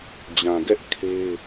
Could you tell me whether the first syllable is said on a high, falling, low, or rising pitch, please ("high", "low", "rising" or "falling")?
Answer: low